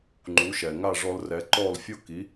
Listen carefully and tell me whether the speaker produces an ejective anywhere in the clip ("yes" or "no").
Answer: no